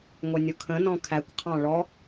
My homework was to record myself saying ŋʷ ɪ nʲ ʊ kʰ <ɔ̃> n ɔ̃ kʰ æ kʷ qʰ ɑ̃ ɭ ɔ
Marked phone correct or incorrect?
incorrect